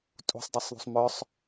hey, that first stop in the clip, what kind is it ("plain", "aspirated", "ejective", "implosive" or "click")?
ejective